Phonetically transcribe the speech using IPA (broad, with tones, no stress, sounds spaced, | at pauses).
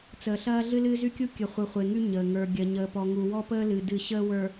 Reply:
t͡s əː˨ ɬ ɐː˦ ɮ ɨ˦ l ɨː˦ z y˦ kʲ u˦ kʲ ə˨ χʷ ɨ˨ χʷ e˨ ŋ y˦ ɲ əː˨ ŋ ə˞˨ ɡʲ ɐ˨ ɲ əː˨ p ɔ˨ ŋ u˨ w ɔ˦ p əː˦ l ɨ˨ d ɨ˦˨ ɕ əː˦ w ə˞˨